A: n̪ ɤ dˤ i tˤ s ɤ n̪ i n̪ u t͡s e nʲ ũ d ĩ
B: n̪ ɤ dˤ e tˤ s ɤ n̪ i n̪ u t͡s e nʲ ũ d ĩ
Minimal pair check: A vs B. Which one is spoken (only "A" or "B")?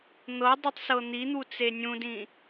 B